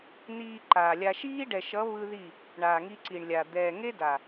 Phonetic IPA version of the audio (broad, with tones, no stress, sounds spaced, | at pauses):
n̪ iː˧ ǃ aː˨ lʲ a˧ ʃ iː˦ ɖ ɛ˨ ʃ ʌ˨˦ β ɯ˦ ð i˦˨ | ɳ aː˨ ŋ i˧ ǀ i˨ ɳ lʲ a˨ d̪ ɛː˨ ŋ e˦ d a˨